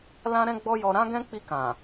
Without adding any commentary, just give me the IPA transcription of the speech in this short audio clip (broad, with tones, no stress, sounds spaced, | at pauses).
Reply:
l ã˦ ɾ ɛ̃˦ ɡ͡b ɔ˦ j ɔ˧ ɾ ã˦ ɡ ɛ̃˦ k͡p i˧ k ã˨